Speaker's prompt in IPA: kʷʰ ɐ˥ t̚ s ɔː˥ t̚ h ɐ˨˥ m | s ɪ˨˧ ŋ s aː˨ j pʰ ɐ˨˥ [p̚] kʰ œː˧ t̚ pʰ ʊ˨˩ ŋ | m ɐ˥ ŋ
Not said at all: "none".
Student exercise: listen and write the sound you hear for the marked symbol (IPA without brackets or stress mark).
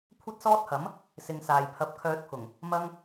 p̚